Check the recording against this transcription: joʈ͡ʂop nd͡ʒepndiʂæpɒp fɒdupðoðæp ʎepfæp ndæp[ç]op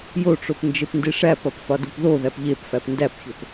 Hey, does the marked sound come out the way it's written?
yes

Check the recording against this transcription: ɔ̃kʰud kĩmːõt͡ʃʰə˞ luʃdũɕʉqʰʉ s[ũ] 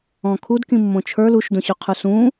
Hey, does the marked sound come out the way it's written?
yes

